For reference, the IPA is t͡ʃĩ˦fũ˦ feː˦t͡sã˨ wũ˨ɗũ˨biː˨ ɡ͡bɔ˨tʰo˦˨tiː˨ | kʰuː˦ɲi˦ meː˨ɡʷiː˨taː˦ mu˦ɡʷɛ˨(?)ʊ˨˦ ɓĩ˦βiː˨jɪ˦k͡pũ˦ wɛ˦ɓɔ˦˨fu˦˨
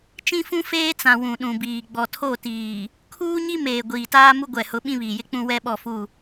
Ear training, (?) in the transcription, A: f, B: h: B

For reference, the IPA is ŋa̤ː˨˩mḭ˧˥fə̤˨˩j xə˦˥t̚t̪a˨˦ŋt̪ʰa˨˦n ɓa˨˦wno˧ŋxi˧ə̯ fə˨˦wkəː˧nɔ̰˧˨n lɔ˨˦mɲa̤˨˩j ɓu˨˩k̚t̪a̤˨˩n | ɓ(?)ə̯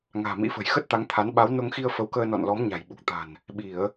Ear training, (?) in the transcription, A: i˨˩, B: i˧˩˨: B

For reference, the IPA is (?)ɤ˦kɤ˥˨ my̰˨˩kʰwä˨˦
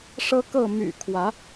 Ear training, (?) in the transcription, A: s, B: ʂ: B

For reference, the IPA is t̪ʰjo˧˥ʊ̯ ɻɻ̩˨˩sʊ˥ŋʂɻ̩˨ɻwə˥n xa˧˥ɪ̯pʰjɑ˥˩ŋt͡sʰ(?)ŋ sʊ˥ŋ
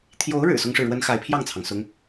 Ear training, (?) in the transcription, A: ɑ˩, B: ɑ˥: A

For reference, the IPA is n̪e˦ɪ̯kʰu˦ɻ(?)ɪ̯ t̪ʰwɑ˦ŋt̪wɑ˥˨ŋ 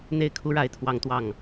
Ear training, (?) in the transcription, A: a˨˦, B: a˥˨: B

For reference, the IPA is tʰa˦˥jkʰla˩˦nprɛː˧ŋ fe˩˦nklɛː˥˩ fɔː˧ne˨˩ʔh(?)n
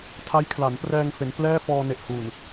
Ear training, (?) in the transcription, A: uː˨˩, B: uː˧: A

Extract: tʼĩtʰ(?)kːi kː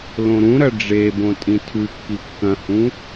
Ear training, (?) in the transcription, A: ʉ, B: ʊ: A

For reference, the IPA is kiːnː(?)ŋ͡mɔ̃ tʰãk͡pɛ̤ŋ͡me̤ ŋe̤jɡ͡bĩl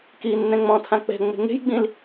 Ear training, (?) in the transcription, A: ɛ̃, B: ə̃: A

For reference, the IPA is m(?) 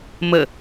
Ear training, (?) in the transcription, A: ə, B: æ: A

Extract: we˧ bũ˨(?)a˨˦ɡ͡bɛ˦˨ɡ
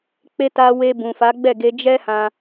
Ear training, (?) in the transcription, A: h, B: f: B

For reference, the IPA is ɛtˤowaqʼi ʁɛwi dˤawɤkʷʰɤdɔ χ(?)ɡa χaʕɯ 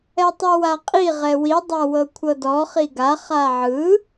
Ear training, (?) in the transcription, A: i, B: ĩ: A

